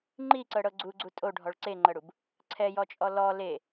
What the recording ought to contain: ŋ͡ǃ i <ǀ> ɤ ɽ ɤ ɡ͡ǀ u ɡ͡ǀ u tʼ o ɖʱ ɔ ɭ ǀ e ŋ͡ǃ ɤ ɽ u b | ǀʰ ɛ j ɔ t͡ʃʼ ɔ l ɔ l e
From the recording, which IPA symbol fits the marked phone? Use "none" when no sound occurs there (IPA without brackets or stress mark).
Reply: ǀ